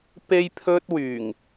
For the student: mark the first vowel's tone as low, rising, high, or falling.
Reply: high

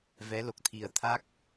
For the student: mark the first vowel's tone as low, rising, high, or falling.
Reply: rising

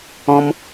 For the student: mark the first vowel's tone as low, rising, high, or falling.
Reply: high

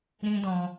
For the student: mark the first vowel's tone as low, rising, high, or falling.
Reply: high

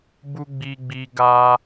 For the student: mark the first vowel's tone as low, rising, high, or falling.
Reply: high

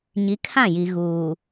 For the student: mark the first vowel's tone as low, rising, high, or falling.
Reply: rising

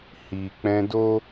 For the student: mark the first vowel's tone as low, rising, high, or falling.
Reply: low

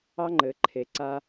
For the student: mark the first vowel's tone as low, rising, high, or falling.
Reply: high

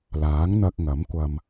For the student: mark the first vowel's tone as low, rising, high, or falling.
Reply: rising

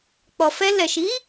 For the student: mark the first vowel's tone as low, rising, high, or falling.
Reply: low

